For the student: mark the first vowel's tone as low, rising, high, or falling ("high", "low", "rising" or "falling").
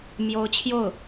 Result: rising